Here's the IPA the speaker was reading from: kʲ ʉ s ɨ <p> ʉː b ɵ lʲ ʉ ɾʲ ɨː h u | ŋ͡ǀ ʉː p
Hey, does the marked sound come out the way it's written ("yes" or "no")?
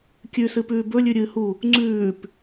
yes